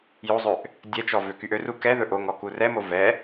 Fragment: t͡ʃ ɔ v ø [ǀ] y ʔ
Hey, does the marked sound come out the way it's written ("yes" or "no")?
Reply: no